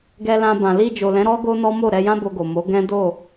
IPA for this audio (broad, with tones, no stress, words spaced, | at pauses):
ɡɛ˧lã˧bã˨ li˧d͡ʒo˨lɛ̃˨˦ɾɔ˦ ɡo˦nɔ˦mo˦˨ ɾɛ˧jã˦ bo˧ɡo˨mo˨˦ ɡɛ̃˦do˦˨